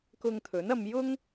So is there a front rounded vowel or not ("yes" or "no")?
no